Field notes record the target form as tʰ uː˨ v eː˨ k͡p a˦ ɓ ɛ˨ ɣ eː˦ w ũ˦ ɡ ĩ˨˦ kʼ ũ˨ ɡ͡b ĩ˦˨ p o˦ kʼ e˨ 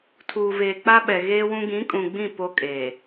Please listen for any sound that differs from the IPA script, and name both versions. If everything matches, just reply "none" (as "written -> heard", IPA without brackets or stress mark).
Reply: none